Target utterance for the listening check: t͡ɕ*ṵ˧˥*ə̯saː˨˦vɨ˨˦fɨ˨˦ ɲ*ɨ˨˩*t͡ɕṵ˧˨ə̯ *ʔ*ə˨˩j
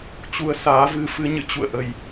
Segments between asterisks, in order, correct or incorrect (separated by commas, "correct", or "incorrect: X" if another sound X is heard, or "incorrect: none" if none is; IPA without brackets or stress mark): incorrect: u˨˦, incorrect: ɨ̰˧˨, correct